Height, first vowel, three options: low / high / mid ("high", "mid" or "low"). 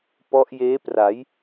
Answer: mid